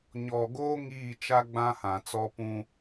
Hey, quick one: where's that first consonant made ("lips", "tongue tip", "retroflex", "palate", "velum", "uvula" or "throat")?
palate